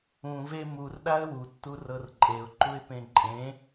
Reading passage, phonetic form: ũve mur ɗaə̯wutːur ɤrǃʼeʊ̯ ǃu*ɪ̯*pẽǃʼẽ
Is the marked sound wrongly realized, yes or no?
no